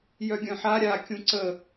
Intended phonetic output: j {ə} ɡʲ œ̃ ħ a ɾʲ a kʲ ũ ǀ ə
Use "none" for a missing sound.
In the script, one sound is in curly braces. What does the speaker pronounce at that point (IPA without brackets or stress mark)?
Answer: œ